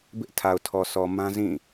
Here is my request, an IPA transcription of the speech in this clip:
b ɪ˦ ʔ tʰ a˨ ʊ̯ tʰ ɔ˨ sʰ ɔ˨ m ã˦ z ĩ˦˨

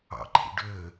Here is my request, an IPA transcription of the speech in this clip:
ɑ̰ ǃʰ ḭ ɖ ø

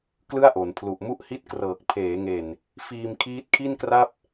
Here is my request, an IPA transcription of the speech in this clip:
k l ɯ˥˩ a̯ ʔ o˩˦ n pʰ l u˨˩ ʔ m u˥˩ ʔ h i˥˩ t̚ k r ɤː˨˩ k̚ pʰ eː˩˦ ŋ e˨˩ n | f iː˧ m kʰ iː˦˥ t̚ kʰ i˥˩ n k r a˥˩ p̚

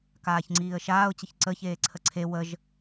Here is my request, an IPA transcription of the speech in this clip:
k aː ç ŋ͡ǀ iː ə̯ ʃ aː ʊ̯ t͡ɕ ə ç ǀ ə ç eː ǀʰ ə ǀʰ e w ə ʒ

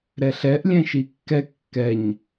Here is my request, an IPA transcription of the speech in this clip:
ɾ ɛ ɬ ɛ ʔ lʲ ɛ̃ ʃ i kː ɛ kː ɛ ɲ

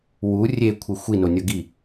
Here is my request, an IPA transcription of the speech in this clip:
w u rʲ e kʷʰ e xʷ i n o nʲ ʌ ɡ i

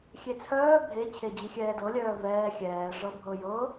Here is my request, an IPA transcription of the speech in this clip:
xʲ e t͡sʰ œː bʱ e t͡ɕʰ e d͡ʑ i xʲ ɛː d ɤ lʲ œː v ɛː xʲ ɛː ʐ ɤ bʱ ɤ j ɤ

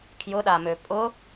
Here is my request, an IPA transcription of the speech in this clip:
kʰ j ʊ ɗ a m ø pʼ ʊ

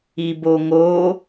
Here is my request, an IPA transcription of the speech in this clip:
i b o ŋ o

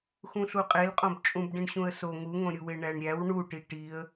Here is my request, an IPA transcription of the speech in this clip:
x ũ ɬ u qʼ e l qʼ õ b t͡ʃʼ ũ b ɖ ĩ ɳ ɕ ũ ə̯ s o ŋ u ŋ õ ɾʲ u w e ɳ æ ɳ ɾʲ æ w ɳ u ʈ i ʈ i ə̯

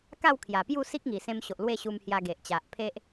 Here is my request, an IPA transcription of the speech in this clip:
k a˥˧ w kʰ j a˨˩ p j u˥˧ s i˦ k̚ ŋ i˨˩ s ẽ˧ m ɕ o˨ ʔ l w e˥˧ ɕ u˧ m h j a˧ ɡ e˨ ʔ t͡ɕ a˨ ʔ pʰ e˦ ʔ

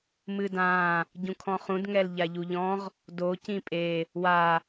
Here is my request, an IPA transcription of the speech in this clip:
m ɨ d ã | ɟ ũ kʰ ɔ̃ χ ũ d ŋ ɛ l ʎ a ʎ u ʎ ɔ̃ ʁ | d o c ĩ pʼ e | w a

